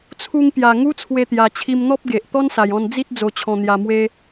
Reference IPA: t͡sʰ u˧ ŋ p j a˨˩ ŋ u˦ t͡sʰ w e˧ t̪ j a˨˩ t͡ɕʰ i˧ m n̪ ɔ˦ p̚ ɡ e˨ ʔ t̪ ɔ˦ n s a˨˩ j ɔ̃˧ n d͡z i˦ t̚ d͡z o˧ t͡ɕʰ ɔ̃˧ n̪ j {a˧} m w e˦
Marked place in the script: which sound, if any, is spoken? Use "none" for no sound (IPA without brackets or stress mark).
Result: a˧